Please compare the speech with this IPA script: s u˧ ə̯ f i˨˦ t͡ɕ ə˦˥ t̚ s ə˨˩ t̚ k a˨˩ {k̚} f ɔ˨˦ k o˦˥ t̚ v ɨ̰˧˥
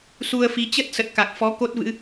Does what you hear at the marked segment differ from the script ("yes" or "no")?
no